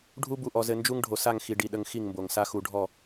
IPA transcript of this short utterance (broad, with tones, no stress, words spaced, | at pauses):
ɖʱu˦ bu˨ʔɔ˨zɘ˨ nd͡ʒu˦ŋ ɖʱo˨sa˦˨ŋxi˨ ɖi˨ɗə˨ŋ xi˦˨ŋmbo˨ŋsa˦ xu˨ɖʱɔ˦˨